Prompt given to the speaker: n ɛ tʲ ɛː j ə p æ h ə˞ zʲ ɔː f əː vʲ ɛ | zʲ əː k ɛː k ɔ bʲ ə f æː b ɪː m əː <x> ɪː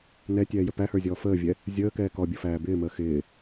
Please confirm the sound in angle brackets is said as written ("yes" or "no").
yes